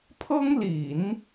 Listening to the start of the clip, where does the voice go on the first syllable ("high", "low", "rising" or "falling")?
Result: high